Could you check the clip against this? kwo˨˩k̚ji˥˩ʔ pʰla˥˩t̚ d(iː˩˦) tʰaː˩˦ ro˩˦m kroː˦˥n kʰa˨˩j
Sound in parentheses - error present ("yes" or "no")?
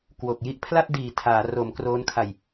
yes